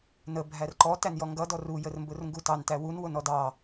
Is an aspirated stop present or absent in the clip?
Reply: absent